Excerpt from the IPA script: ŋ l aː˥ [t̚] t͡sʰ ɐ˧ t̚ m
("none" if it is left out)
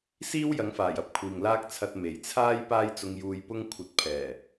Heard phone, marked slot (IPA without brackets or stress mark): k̚